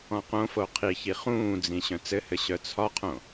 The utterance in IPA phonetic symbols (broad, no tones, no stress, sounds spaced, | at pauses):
ɔ̃ q õ f o qʰ i ç i χ ũː d͡z ĩ ɕ œ̃ t͡s ɘ h ɘ ɕ œ t͡sʰ ɒ qʰ õ